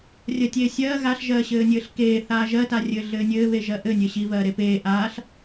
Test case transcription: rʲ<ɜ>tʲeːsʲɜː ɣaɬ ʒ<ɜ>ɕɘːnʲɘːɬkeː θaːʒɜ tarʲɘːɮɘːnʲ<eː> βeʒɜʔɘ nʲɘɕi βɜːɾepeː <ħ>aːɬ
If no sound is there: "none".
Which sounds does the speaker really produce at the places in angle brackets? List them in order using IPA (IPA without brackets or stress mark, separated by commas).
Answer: ɜ, ɜː, ɘː, ʔ